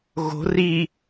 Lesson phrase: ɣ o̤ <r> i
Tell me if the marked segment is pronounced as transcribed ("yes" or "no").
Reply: yes